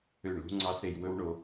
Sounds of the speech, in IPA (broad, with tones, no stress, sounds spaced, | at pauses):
ø˦˨ ɳ l ṳ˦ ŋ͡ǀ ɑ˦ s ɾ e˧ j w ɵ˦ w ɳ o˧